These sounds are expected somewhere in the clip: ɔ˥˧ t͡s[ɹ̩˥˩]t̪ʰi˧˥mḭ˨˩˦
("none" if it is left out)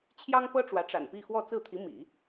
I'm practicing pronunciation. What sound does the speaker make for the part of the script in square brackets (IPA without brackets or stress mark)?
ɹ̩˥˩